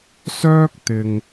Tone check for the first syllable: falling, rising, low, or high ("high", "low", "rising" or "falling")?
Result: high